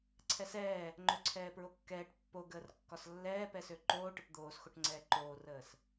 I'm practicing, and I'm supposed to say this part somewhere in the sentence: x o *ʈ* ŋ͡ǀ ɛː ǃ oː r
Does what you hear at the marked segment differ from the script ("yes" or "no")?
no